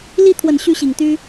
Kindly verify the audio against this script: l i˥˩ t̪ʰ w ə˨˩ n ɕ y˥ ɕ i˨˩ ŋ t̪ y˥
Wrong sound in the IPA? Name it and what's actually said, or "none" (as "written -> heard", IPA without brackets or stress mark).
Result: none